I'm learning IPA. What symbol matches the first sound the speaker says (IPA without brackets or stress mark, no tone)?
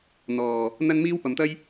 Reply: n̪